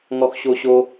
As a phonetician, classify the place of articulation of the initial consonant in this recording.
velar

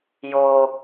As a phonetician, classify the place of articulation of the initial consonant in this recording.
palatal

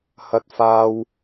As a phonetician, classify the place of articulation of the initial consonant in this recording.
glottal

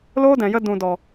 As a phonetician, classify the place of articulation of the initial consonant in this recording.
alveolar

